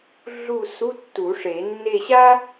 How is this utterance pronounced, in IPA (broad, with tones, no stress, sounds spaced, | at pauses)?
ɮ u˦˨ s u˧˥˧ tː u˨˩˦ ʂ e˨˩˦ nː e˦˨ ɕ a˥